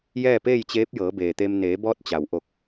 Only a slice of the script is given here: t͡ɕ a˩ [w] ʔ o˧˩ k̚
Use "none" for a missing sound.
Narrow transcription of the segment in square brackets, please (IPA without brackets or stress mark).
w